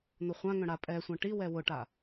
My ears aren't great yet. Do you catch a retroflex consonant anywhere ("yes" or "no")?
yes